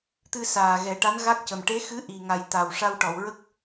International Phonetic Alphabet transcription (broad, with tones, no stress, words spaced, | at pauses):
t̪ɨ˧saː˨˩ ɣɛ˨˩˦ʈa˧˥nɣa˦˥k̚cə˨˩m ʈe˧˥xɨ˧˥ ʔi˨˩ŋa˨˩j t̪a˨˩wʂa˧wʈɔ˨˩˨wɹə˦˥k̚